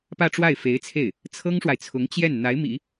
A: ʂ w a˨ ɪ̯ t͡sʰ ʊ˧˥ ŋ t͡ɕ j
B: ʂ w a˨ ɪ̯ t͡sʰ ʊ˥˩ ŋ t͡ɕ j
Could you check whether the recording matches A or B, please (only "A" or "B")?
A